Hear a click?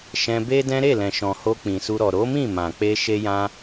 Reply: no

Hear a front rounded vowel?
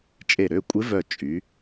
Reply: yes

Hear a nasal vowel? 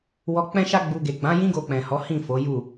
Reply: yes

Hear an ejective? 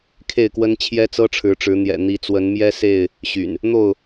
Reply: no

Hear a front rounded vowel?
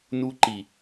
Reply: no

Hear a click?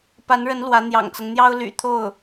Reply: no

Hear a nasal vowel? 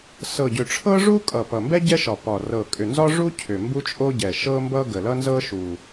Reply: no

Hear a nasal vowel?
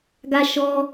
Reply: no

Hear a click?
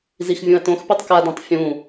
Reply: no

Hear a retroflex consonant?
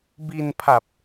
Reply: no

